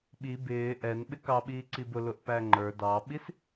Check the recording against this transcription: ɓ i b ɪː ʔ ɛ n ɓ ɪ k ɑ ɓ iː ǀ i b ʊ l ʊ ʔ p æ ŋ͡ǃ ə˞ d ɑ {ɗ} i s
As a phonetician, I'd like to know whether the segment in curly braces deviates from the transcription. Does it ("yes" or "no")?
yes